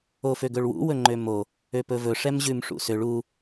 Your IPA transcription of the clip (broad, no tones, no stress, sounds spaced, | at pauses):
o f ø ɡ ɵ ɭ w ṵ w ɵ ŋ͡ǃ ø m o | ø p ɵ v ɵ ʂ ɛ m ʑ ʉ m ʂ ṵ s ø ɭ u